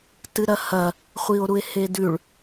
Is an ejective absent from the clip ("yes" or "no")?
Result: yes